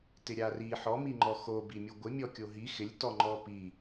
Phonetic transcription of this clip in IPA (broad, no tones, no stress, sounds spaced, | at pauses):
t ɪ ɾʲ a r i ħ ɔ m i ŋ͡ǃ ɔ x o b i mʲ u ɡʷ ɪ mʲ ɔ kʲ o ɦ i x ɪ lʲ t ɔ ŋ͡ǃ ɔ p i